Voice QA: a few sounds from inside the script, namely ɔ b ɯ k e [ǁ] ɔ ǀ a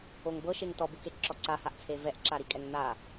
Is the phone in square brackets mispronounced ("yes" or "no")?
no